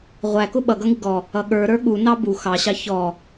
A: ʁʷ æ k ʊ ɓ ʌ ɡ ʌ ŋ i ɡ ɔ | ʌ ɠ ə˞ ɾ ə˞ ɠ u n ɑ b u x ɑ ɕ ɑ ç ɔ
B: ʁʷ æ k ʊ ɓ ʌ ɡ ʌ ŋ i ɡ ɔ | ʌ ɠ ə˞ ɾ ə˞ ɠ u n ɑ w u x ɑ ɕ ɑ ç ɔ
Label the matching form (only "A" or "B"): A